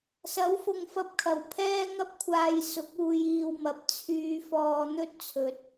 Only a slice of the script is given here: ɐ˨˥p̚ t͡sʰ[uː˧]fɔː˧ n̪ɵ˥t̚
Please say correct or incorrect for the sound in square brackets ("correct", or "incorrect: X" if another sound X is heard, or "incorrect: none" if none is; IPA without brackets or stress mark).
incorrect: yː˧